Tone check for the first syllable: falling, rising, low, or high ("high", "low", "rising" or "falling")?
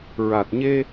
low